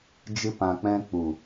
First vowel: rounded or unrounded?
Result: unrounded